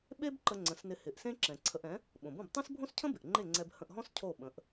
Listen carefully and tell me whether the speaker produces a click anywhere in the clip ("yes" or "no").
yes